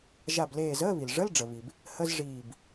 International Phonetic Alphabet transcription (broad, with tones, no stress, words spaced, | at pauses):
ʒa˧˩bleː˧˩zəː˧˥˧βi˩l ʐə˧˥˧lɖ͡ʐə˩βi˩b | hə˧˥˧zʐiː˧˩b